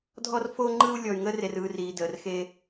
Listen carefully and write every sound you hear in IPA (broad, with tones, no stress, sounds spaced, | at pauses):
dʱ ɔ˦ r f o˦ ŋ͡ǃ ɯ˦ u̯ lʲ ɔ˧ y̯ ŋ ə˦ r e˧ r ɯː˧ r iː˧ d əː˧ r x eː˦